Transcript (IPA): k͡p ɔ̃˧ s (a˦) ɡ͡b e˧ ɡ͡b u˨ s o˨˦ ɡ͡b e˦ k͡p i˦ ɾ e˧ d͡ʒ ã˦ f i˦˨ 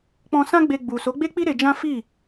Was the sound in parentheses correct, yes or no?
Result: no